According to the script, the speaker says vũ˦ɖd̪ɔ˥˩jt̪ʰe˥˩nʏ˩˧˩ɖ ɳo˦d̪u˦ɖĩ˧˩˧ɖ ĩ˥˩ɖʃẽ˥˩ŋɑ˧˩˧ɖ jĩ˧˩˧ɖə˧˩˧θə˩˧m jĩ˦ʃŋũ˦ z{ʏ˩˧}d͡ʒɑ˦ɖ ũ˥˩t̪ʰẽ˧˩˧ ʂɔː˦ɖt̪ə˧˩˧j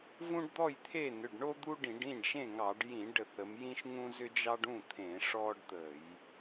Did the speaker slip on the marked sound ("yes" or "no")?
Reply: yes